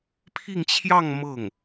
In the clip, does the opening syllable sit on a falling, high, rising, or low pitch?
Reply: falling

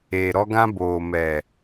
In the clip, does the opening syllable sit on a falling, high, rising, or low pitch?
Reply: low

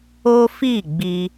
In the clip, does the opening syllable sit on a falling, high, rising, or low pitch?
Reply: high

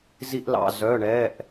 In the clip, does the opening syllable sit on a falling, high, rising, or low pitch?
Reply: high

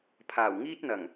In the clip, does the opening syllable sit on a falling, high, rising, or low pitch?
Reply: low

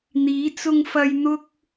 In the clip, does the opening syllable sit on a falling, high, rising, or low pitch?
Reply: rising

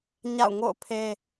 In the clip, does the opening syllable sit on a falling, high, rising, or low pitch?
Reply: falling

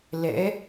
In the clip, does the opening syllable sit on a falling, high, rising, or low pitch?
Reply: rising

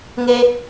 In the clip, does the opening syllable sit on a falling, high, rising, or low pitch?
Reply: high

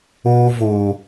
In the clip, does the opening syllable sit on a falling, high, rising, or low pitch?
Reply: high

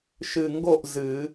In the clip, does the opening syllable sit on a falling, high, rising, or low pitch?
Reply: low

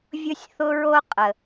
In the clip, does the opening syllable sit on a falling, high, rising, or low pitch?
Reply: high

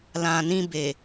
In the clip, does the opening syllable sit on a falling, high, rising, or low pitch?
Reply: low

